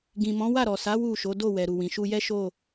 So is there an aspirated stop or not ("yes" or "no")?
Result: no